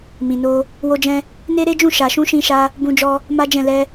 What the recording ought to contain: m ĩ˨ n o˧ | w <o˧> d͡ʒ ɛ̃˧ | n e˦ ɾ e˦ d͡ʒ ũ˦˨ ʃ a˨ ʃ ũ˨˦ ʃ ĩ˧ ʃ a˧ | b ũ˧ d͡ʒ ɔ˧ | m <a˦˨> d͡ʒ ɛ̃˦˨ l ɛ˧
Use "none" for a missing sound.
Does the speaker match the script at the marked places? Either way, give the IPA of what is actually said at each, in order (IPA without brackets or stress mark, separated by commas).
o˧, a˦